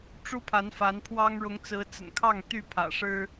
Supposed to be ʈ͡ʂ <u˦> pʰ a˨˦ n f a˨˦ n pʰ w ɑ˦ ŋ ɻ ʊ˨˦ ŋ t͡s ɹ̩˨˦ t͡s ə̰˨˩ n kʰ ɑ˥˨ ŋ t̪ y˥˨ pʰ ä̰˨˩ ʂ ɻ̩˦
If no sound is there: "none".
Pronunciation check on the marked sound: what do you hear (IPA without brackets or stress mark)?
u˦